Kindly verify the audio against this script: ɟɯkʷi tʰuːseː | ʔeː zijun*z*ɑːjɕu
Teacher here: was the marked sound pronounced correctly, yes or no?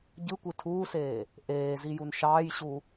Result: no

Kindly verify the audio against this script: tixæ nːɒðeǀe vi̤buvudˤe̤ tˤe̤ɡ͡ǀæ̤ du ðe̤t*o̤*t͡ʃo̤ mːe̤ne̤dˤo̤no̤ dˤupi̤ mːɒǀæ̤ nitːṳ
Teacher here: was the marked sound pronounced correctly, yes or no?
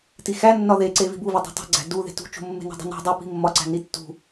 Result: no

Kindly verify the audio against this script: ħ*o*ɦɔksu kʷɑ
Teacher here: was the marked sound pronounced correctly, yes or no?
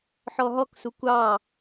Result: no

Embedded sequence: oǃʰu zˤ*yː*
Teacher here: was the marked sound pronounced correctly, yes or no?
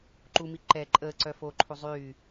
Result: yes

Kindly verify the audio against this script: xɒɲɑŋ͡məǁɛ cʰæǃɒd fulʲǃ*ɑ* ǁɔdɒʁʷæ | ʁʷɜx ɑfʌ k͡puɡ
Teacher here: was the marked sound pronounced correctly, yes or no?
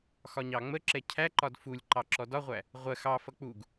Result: yes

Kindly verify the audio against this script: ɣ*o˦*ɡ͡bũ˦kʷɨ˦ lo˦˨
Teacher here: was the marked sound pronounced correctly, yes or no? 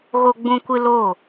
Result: yes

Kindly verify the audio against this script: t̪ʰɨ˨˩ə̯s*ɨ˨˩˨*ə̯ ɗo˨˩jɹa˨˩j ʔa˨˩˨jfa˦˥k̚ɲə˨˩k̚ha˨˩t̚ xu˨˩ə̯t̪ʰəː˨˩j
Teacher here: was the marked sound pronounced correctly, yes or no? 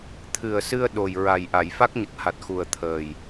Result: no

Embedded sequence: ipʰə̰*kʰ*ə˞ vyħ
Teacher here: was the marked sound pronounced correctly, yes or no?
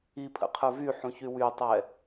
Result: no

